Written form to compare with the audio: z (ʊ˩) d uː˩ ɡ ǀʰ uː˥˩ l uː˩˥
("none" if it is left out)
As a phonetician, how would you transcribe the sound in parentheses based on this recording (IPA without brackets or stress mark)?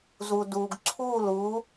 u˩